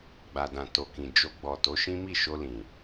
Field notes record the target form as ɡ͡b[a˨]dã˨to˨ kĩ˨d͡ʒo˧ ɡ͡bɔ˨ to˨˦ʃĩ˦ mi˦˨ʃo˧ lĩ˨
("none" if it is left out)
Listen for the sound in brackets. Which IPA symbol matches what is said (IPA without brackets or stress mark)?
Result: a˨